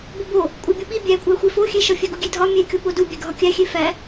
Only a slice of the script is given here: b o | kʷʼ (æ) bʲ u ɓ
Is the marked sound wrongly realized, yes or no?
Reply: no